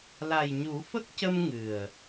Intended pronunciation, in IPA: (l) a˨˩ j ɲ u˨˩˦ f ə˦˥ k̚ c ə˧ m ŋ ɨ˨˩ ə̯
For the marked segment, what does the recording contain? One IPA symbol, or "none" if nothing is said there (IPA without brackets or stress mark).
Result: l